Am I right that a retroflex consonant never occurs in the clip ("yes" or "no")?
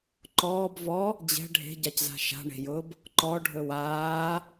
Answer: no